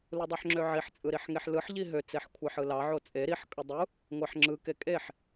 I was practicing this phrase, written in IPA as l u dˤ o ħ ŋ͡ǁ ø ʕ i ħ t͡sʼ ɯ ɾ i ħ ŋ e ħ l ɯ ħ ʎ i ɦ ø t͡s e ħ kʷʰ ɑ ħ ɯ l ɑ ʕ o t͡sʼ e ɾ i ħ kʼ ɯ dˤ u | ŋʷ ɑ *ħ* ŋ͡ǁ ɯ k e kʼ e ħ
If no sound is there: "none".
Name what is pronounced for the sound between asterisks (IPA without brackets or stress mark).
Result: ħ